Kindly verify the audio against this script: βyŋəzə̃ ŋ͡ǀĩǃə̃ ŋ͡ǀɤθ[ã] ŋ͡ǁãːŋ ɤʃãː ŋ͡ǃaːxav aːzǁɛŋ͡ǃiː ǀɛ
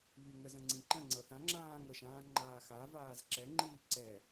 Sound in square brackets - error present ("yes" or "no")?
no